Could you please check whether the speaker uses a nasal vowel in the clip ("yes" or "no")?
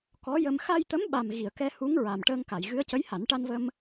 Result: no